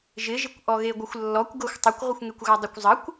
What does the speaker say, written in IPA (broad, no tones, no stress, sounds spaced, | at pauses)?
ʒ ɪ ʒ ɪ kʷ ʔ ɔ ɣ e ɡʷ ɪ xʷ lː ɔ kʷ ɡ ɤ xʷ tˤ ɪ kʷ ʁʷ ə xʷ ŋ e kʷ ɣ a dˤ ɪ kʷ zˤ ə kʷ